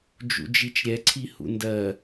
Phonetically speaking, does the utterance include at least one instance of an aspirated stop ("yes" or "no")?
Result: yes